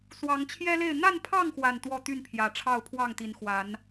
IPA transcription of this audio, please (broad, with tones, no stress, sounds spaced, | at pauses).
s w ɑ˨˦ ŋ t͡ɕʰ j ɛ˦ l e˥˨ ɪ̯ n̪ a˥˨ n pʰ ɑ˥˨ ŋ x w a˨˩ n t̪ w ɔ˥˨ t̪ y˥˨ n pʰ j ä˨˩ ʈ͡ʂʰ ɑ˥˨ ʊ̯ pʰ w ɑ˥˨ ŋ t̪ i˨˦ n x w a˨˦ n